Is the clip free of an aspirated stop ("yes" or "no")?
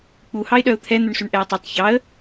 no